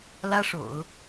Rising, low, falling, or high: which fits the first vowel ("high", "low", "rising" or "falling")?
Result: high